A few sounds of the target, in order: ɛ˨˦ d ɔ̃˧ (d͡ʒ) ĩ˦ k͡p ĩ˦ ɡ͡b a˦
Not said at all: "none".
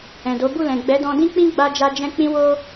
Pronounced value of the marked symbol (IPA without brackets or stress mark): d